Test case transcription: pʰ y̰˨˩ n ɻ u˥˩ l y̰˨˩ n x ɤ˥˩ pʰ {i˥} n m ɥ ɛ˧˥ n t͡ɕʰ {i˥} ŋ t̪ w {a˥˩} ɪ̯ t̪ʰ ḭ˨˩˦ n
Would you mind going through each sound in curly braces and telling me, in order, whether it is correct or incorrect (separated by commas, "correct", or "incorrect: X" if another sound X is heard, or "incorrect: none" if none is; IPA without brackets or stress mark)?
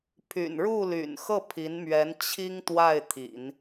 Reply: incorrect: i˧˥, correct, correct